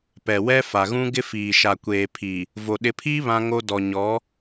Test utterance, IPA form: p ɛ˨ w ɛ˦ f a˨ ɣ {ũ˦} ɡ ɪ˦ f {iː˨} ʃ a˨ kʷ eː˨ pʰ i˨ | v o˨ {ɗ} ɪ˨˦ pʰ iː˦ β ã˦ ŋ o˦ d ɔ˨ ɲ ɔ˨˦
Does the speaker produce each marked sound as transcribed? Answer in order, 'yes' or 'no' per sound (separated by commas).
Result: yes, yes, yes